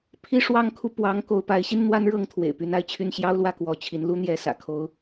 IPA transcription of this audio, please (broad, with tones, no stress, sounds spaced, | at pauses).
pʰ i˥ ʂ w ɑ˥˧ ŋ kʰ u˥˩ p w ɑ˧˥ ŋ k o˧˥ ʊ̯ p a˧˥ ɪ̯ ɕ i˥ n n̪ w a˥ n ɻ ɤ˥ ŋ t̪ʰ w ḛ˨˩ ɪ̯ p y˧˥ n a˥ ɪ̯ t͡ɕʰ y˥˩ n ɕ j ɑ˥ ʊ̯ l w ä˥˩ k w ɔ˧˥ t͡ɕʰ i˧˥ n l u˥ n̪ j ɛ˧˥ s ä̰˨˩ kʰ o˥ ʊ̯